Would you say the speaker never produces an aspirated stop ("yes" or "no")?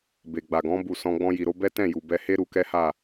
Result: yes